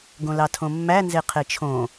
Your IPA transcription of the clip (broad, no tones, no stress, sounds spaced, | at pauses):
ɡ õ l ɑ tʰ õ mː æ n z e qʰ e t͡ʃʰ õ